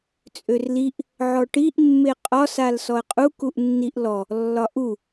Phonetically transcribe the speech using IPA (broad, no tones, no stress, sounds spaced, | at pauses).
t͡sʼ ø r l i ʔ | ʕ ɔ ʈ i ʔ mː e qʼ ɒ s a l s ɔ ə̯ qʼ u k u ʔ nː i ʔ l ɔ | lː ɒ ʔ u